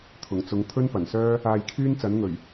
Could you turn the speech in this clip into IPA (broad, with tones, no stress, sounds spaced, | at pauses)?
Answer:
t̪ʰ ʊ˨˩ ŋ t͡s ʊ˨˧ ŋ t̪ʰ ɵ˥ n p ɐ˨˩ n s œː˥ | aː˧ j kʰ yː˥ n t͡s ɐ˨˥ n ŋ ɵ˨˩ ɥ